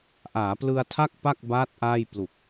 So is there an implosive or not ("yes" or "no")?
no